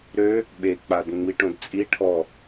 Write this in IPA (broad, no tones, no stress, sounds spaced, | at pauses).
ɾ ø | ɓ e k͡p a d ŋ͡m i ʈ õ d t͡sʼ i ʈʰ ɔ